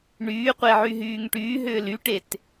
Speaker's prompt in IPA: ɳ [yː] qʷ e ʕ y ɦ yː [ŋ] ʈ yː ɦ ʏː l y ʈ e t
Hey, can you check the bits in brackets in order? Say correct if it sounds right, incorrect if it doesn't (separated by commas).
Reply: correct, correct